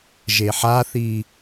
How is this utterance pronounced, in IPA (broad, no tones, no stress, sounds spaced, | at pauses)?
ʒ e ħ a θ i